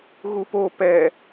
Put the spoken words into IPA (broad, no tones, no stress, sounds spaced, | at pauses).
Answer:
ɣ u p o p ɛ